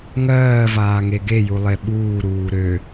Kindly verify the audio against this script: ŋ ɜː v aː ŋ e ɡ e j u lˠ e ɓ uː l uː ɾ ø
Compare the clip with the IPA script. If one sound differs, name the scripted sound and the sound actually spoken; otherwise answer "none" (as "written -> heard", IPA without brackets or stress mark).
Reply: l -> ɾ